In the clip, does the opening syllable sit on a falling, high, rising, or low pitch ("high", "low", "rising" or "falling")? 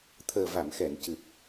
low